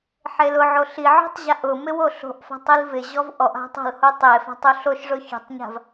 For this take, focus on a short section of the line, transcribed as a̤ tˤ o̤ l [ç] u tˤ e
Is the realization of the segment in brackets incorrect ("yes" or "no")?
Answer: yes